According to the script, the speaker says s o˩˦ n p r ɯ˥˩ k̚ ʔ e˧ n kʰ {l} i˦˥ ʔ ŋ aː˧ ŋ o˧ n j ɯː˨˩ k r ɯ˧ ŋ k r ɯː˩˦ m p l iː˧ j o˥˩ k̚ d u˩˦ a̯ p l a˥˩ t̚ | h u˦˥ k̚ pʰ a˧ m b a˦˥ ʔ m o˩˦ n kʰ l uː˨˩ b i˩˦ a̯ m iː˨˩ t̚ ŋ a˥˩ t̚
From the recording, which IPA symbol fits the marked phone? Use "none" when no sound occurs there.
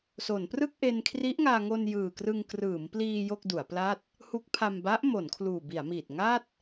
r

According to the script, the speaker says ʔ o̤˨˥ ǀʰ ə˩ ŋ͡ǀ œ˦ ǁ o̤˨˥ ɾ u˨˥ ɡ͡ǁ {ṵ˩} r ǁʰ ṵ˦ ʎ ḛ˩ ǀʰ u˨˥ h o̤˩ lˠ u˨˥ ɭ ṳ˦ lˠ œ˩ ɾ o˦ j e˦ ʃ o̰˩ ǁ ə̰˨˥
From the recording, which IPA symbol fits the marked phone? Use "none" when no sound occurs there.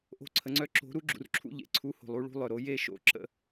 ṵ˩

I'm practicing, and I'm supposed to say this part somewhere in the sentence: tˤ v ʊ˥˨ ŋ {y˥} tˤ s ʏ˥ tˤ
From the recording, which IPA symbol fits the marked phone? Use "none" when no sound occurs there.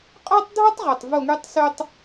y˥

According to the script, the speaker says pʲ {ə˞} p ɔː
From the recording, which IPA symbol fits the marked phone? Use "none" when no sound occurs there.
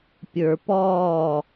ə˞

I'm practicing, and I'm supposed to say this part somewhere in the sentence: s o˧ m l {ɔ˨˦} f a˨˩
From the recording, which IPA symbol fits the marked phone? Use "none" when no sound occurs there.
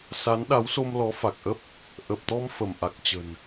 ɔ˨˦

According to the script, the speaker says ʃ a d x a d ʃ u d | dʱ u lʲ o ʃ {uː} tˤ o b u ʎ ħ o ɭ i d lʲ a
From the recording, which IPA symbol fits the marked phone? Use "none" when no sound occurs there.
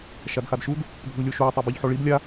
uː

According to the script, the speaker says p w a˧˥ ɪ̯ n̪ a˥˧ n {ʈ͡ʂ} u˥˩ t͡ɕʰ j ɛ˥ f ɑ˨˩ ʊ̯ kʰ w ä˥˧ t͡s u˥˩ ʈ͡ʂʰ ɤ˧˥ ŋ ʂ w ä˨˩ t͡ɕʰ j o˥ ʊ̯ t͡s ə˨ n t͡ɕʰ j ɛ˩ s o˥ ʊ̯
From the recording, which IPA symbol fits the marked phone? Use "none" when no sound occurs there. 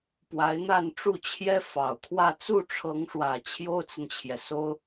ʈ͡ʂ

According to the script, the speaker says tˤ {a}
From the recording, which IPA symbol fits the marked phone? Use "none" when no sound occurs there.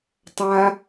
a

